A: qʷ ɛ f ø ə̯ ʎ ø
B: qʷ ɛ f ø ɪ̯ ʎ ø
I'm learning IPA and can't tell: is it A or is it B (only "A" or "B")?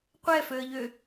A